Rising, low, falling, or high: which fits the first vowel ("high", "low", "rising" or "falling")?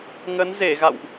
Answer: rising